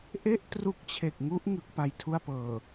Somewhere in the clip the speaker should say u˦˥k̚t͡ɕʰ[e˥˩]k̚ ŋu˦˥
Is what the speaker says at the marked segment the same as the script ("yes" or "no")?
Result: no